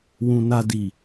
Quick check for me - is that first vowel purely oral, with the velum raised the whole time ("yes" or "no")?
no